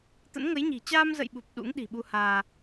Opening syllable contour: rising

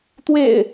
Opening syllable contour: low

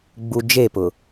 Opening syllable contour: low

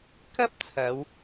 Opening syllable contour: high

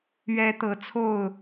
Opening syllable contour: high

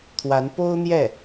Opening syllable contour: rising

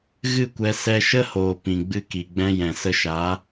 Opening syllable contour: falling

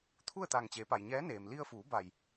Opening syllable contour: falling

